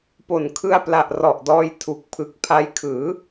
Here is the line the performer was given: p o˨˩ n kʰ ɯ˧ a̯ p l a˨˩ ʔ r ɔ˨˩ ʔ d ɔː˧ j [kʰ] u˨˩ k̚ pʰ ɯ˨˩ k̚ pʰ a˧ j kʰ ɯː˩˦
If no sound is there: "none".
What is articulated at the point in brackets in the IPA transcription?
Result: tʰ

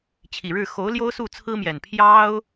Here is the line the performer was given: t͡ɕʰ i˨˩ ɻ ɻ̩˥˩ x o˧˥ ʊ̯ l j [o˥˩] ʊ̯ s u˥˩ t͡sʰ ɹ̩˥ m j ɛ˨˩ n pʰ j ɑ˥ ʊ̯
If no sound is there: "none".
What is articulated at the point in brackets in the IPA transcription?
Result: o˥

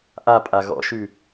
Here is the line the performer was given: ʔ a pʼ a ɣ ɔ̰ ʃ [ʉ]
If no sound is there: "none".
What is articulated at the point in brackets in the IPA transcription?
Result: ʉ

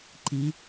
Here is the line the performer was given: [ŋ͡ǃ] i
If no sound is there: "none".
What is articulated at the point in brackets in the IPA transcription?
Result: ǃ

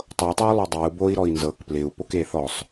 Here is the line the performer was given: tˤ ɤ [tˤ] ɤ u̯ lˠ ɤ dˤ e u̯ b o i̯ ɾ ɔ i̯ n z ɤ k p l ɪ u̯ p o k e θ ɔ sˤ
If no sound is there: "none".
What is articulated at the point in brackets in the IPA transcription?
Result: tˤ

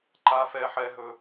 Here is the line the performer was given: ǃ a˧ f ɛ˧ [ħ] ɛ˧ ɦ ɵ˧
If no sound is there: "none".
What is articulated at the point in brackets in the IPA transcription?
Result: ħ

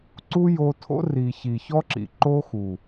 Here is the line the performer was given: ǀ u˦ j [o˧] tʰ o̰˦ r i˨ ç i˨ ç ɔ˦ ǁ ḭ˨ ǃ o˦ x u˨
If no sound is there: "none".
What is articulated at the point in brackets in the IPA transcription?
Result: o˧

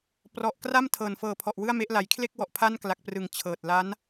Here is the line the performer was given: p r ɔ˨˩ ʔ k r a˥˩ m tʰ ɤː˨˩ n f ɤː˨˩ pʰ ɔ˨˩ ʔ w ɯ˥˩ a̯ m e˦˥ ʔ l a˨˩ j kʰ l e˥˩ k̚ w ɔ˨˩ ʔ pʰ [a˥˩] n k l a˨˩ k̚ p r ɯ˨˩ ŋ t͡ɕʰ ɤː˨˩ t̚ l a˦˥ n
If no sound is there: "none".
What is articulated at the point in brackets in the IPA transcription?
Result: a˥˩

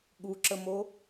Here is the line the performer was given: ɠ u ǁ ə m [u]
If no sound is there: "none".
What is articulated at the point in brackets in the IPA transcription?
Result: o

